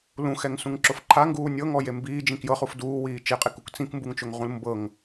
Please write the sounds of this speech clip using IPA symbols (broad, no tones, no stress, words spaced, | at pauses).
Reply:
lũxɛŋsũŋǁof ǃʰaŋɡuː nʲɤŋɔje mbiːd͡ʒĩk jɤχuf duːwiː t͡ʃeqʼekuk t͡sĩkmbuŋt͡ʃoŋʁũl mbɤŋ